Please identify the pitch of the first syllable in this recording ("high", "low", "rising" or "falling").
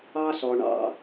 high